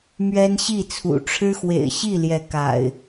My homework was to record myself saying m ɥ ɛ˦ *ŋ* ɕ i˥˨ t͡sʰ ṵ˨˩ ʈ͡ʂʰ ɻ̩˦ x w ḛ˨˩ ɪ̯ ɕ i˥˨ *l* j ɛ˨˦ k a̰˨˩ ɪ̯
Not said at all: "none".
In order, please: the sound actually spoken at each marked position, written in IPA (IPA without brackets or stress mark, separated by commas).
n, l